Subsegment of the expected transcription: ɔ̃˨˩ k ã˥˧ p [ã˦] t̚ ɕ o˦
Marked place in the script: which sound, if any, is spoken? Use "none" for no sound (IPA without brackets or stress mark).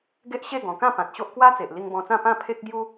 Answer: ã˨